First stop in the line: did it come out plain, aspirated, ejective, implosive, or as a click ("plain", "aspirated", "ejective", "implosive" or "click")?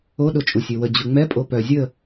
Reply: implosive